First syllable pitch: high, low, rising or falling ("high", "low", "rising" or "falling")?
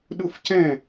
falling